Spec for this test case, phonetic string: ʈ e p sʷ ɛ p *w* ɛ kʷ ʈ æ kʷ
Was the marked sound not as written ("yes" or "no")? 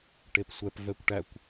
yes